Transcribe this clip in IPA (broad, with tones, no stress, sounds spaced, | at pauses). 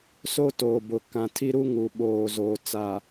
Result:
s o˦ t oː˨ b ʊ˨ k ã˨ tʰ i˦ ɾ u˦ ŋ u˨ ɓ oː˨ z oː˨ t͡s a˨